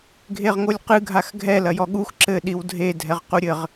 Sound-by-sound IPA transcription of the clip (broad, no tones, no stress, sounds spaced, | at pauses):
ɡʱ e ʁ ŋ o lʲ q ɨ ɡʱ a x ɡʱ ɛ l ɐ j ɔ ɠ u x ǁ ɘ ɗ i w dʱ e dʱ ɛ ʁ q u ɾʲ ɘ ʁ